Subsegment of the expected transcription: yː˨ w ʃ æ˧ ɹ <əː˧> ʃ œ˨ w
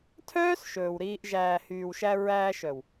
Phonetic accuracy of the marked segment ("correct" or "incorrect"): incorrect